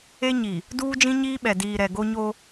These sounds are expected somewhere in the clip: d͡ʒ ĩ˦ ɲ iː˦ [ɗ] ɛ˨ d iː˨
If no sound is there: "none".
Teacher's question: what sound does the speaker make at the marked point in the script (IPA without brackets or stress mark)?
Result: ɓ